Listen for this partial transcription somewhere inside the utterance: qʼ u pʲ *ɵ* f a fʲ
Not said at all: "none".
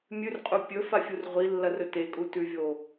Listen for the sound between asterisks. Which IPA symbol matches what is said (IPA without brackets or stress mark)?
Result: ɵ